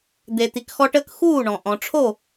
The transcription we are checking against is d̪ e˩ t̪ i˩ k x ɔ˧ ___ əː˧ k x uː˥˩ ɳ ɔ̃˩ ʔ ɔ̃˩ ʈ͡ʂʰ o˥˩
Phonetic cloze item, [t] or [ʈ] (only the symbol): ʈ